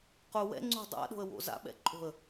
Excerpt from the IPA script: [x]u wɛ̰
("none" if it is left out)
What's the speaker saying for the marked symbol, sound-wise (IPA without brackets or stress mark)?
q